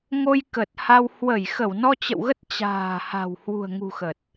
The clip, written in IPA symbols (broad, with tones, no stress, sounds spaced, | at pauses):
ŋ o˧ j k ə˨˩ t̚ h a˧ w h w ə˧˩ j x ə˧˩ w n ɔ˧ t͡ɕ ə̰˧˨ w ɣ ə˦˥ t̚ t͡ɕ a̤ː˨˩ h a̤˨˩ w h w ṳ˨˩ ə̯ ŋ ṳ˨˩ x ə˨˩ t̚